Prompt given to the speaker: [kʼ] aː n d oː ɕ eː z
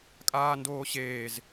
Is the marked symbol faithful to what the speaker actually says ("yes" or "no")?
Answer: yes